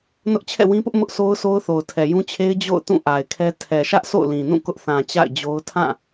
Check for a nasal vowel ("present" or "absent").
present